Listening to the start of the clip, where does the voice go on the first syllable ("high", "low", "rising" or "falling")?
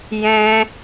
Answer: high